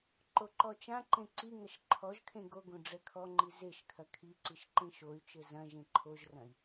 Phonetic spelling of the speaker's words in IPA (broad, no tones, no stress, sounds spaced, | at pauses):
ǃ o ǃ ɔ t͡ʃ ã ǃ ẽ ǀ i ŋ ɐ ʃ ǃʰ ɔ ʒ kʰ ẽ ɡ o ɡ õ ɖ͡ʐ ɛ kʰ ɔ ŋ͡ǃ i z e ʃ kʰ ɐ kʰ i ǀ i ʃ ǃ ẽ ʃ o y̯ t͡ʃ ɘ z ɐ̃ ʒ ẽ ǃʰ o ʒ r ɐ̃ i̯